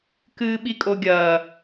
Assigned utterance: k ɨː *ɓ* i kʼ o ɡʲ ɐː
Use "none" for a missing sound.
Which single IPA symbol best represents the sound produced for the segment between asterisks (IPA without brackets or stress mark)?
ɓ